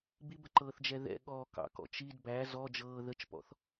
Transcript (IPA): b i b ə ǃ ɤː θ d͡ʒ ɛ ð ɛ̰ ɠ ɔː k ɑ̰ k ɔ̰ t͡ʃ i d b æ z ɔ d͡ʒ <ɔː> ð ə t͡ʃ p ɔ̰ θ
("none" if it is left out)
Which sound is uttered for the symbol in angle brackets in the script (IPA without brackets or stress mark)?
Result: ɤː